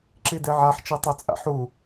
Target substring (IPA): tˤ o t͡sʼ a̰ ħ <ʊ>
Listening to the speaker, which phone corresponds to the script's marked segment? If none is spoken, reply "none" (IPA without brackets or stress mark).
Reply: u